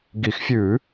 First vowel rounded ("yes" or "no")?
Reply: no